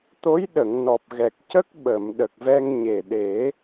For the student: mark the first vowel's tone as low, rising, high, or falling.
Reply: rising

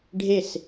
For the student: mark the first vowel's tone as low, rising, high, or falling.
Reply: falling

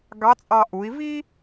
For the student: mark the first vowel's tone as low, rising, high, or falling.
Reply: rising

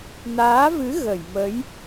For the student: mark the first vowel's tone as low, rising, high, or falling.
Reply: rising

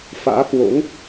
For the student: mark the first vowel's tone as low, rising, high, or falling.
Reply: rising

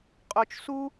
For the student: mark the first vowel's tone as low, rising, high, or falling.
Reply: low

